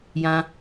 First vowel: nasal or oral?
nasal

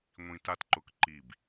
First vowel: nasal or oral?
nasal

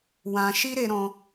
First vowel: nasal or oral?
nasal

